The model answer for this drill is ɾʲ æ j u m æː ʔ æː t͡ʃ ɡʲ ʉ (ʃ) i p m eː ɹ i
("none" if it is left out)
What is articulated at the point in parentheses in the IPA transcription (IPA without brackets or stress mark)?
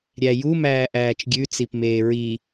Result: t͡s